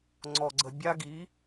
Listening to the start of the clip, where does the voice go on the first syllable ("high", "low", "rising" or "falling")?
low